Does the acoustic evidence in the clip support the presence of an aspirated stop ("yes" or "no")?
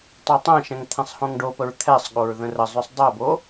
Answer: yes